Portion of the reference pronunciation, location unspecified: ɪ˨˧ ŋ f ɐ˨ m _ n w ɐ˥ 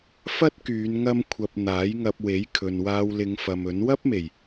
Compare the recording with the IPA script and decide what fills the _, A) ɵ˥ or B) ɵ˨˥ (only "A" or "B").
B